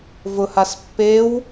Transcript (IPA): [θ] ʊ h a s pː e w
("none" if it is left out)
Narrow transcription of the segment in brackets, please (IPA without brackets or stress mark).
v